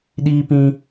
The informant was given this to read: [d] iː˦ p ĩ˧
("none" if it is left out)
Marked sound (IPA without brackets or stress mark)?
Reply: ɗ